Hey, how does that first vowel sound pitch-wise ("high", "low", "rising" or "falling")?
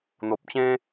low